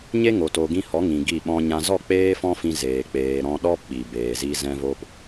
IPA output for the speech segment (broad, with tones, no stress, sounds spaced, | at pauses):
ɲ e˦ ŋ o˨ t o˨ ɡ ĩ˧ h ɔ˨˦ ŋ ĩ˨ ɡ i˦˨ ɓ ɔ̃˦ ɲ ã˦ z ɔ˦˨ k͡p eː˦ f ɔ̃˦ f ĩ˧ z eː˧ k͡p eː˧ ɾ ɔ̃˦ ɗ ɔ˦ p ɓ i˨ b eː˨ z i˧ z ɛ̃˧ v o˧ p